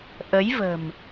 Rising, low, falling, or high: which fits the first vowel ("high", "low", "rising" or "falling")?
rising